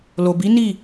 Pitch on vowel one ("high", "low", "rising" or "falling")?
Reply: low